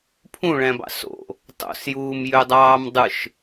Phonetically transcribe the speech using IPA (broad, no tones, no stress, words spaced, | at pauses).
pʰũɭæ̃bɑ̰ so̰ | tˤo̰sjuːmjødˤɑːm dˤɯʃ